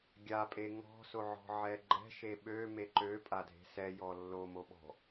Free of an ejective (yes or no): no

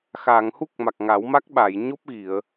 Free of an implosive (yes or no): no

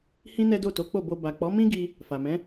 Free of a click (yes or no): yes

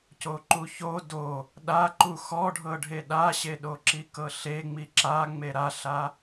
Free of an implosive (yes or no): no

